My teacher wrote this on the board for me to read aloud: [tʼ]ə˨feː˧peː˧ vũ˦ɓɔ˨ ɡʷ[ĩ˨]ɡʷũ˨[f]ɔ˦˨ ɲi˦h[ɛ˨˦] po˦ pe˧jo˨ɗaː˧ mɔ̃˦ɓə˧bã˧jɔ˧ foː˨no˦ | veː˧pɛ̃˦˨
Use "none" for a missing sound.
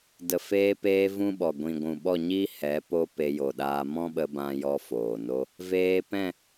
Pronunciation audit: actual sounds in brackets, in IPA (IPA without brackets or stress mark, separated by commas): d, ĩ˨, ɓ, ɛ˨˦